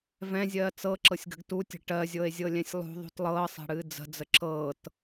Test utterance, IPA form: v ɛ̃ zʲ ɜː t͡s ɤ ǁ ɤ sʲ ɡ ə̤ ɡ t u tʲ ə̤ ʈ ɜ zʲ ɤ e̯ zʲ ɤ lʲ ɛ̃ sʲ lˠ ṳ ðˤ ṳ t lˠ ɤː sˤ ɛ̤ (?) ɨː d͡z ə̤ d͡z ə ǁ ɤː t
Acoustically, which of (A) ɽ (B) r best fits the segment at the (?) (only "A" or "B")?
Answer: A